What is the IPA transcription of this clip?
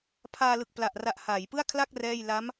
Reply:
pʰ aː˧ l ɯ˨˩ k̚ p l a˨˩ ʔ r a˨˩ ʔ h aː˩˦ j p ɯ˥˩ a̯ kʰ l a˥˩ k̚ r ɛː˥˩ j l a˦˥ m

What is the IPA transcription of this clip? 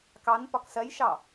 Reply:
k ɑ n p ɒ k s ɜ j ʃ ɑ

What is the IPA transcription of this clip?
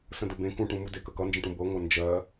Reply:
s ə̃ d ə b ẽ k ũ ʈ ũ m u d e k ə k ʌ n d͡ʒ ə̃ ʈ ũ b ɤ ŋʷ ʌ n d͡ʒ ɜ

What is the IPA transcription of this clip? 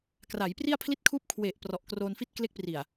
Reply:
k r a˩˦ j p r i˥˩ a̯ pʰ l i˥˩ t̚ kʰ uː˥˩ p̚ kʰ w e˨˩ ʔ p r ɔ˨˩ ʔ k r oː˧ n f i˥˩ t̚ k l e˦˥ k̚ p r i˨˩ a̯

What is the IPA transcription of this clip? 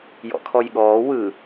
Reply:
j ɔ̰ kʰ ɔ j ɠ ɔː w ɯ

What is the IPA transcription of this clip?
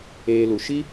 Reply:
eː˦ l u˧ ʃ i˦

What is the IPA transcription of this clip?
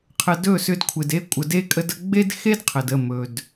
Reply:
qʰ ə˧ d ɵ˦˨ s ʏ˧ d kʷʰ ɪ˨ d e˧ kʷʼ ə˨ d e˧ kʼ ə˧ d ə˧ ɡ͡b e˦ d x e˦ d qʰ ə˨ d ə˦˨ m ɵ˨ d

